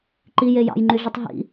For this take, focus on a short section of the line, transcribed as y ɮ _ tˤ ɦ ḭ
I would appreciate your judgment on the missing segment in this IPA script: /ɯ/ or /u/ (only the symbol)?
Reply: u